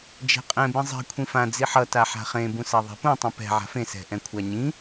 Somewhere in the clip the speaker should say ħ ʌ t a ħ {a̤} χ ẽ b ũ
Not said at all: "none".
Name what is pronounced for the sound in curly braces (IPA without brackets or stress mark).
a̤